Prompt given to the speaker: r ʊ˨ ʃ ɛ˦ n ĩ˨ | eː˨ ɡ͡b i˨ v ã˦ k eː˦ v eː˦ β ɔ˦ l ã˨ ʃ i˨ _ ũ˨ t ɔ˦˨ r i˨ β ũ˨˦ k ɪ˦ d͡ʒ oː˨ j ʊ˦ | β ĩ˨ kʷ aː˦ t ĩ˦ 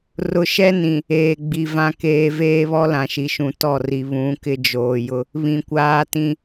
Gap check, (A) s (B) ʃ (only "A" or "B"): B